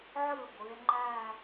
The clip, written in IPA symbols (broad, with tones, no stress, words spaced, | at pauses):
ʕɯ˥˩ɡʷɯ˩˧e̯ŋ͡ǃæ˥˧